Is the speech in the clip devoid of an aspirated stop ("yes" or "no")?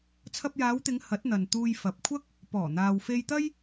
no